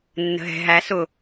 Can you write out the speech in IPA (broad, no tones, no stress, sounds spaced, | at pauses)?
nː ə̤ ɦ ɛ̤ ɦ æ s ʊ